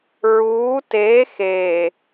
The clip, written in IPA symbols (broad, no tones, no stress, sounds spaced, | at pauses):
ɹ uː t eː x eː